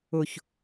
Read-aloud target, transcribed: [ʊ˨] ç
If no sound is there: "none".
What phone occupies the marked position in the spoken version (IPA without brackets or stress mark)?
ʊ˨